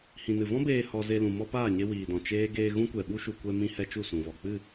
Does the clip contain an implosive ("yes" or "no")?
yes